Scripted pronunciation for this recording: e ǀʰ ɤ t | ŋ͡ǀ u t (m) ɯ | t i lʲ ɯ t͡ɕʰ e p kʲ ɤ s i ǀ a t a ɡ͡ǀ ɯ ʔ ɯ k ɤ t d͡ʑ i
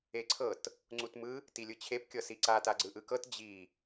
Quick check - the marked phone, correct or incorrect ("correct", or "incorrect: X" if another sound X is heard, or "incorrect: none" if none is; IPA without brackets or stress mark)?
correct